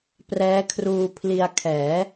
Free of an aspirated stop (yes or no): no